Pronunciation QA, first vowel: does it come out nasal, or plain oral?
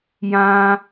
nasal